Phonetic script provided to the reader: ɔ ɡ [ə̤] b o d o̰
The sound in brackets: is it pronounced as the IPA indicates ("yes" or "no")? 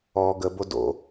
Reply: no